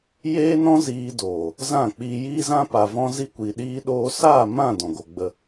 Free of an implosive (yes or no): no